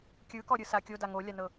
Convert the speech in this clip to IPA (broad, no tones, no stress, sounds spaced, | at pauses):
kʲ ɯ k ɔ ɾʲ ɯ s a kʲ o d a ŋ o lʲ a n ɤ